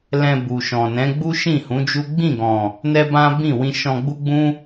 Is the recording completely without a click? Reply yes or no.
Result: yes